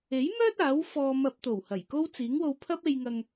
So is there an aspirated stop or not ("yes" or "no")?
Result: yes